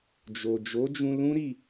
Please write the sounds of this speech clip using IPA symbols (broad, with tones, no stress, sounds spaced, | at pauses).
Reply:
d͡ʒ o˨ d͡ʒ o˨˦ d͡ʒ ũ˧ l ũ˦ ɾ i˦˨